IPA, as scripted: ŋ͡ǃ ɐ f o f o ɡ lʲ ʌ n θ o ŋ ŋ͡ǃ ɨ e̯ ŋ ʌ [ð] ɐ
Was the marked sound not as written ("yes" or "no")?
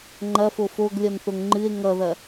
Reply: no